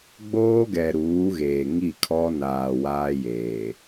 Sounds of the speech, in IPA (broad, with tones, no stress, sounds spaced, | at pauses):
ɡ͡b oː˦ ɡ ɛ˨ ɾ uː˨˦ ɣ eː˨ ŋ i˦˨ kʰ ɔ˦ n aː˨ w aː˦ j eː˨